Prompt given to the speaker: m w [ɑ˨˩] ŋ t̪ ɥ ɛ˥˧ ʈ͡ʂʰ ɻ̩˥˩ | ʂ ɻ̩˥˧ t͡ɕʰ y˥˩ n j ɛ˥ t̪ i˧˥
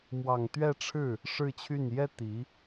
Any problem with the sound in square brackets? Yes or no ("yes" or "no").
no